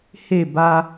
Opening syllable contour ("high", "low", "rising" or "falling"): falling